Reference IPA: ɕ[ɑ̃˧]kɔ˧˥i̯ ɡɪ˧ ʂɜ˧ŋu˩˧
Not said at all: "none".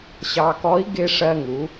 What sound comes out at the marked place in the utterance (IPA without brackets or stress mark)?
ɑ˧